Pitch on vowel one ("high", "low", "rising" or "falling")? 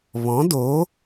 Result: rising